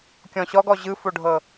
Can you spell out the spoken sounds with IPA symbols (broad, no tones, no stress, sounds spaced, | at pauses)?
kʲ ɔ̃ ɕ ɔ ɡ ɔ ʑ ɯ f o ɖʱ ɤ